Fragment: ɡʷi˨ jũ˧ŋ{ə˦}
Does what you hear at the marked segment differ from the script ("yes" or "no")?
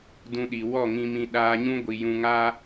yes